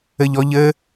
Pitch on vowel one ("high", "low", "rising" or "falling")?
high